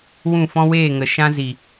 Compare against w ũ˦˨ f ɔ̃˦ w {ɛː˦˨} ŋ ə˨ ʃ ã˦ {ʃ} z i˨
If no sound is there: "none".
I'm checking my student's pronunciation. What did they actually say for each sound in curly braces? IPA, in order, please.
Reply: eː˦˨, none

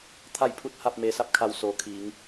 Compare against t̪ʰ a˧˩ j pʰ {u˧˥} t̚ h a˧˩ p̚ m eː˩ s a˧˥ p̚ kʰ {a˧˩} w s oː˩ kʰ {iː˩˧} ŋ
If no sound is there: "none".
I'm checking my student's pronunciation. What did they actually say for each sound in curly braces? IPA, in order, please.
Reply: u˧˩, a˧˩, iː˩˧

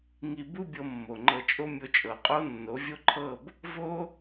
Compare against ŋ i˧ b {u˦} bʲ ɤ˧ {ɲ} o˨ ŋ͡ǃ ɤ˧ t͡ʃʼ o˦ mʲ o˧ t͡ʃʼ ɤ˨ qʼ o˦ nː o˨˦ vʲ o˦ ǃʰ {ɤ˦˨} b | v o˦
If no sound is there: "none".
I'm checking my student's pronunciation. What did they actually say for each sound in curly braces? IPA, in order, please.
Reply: u˦, mː, ɤ˦˨

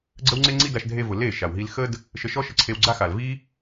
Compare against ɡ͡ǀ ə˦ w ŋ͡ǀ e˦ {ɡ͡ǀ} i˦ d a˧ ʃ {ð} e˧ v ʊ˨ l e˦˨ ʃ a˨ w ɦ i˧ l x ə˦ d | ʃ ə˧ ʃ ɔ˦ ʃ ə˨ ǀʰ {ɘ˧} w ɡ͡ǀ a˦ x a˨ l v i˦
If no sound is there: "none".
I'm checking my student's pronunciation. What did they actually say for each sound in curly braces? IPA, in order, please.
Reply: ŋ͡ǀ, dʱ, e˧

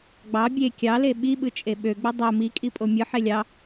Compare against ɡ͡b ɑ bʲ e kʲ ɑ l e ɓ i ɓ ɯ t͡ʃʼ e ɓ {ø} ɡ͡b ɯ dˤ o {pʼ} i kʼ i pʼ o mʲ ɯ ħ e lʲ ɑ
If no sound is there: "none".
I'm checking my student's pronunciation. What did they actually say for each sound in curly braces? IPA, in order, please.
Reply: ø, m

